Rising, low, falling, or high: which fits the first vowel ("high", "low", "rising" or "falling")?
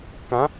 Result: rising